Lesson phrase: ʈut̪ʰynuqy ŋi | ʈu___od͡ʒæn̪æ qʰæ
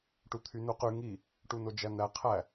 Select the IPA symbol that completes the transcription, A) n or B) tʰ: A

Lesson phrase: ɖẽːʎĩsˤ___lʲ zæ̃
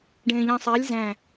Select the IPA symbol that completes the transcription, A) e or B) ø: A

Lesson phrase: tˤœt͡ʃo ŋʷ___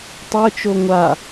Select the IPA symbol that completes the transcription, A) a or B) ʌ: A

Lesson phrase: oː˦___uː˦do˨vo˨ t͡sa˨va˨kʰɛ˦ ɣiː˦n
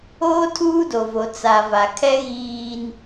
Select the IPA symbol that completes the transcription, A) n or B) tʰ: B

